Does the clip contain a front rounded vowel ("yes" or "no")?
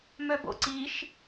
yes